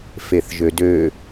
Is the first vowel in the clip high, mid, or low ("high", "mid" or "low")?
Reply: mid